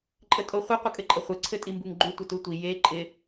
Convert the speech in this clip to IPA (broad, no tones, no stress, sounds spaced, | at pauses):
ǃʼ ə tʼ o χʷ ə qʷ ə kʼ ɘ ǃʼ ə χʷ ɘ ǀʰ ɘ tʼ i m b u ŋ ɡ͡ǃ u tʷ ə t u tʷ i j e ǃʼ ɪ